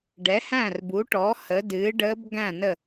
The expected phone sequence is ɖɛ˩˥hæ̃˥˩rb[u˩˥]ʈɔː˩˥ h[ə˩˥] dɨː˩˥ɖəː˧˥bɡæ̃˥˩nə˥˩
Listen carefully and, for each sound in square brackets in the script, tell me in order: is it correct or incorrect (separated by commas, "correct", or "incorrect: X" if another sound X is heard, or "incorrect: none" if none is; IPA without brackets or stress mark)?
correct, correct